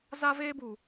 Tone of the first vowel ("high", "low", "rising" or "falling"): high